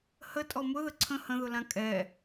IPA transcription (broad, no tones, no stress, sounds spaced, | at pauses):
h ə tʼ ɔ m ʊ ð ə ǀʰ ə̃ h ə̃ ð ʊ l ã kʼ ɛ